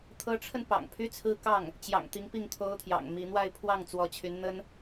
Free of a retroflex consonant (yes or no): no